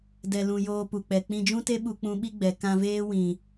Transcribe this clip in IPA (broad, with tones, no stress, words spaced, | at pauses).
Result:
dɛ˧lũ˧ joː˧pu˨k͡pɛ˨ k͡pĩ˧d͡ʒũ˦te˦ ɓu˧k͡pũ˧ɓi˦ɡ͡bɛ˨ kã˧veː˦ wĩ˨